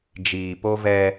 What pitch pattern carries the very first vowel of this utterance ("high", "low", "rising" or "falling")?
low